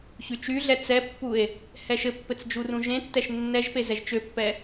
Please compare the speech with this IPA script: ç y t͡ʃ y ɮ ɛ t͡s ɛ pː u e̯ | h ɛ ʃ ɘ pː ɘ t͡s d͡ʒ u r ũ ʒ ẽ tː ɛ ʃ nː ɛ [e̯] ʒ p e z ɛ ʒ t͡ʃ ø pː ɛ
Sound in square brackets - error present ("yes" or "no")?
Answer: yes